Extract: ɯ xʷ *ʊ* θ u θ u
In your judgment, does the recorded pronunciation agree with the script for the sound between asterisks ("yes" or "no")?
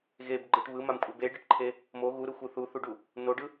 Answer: no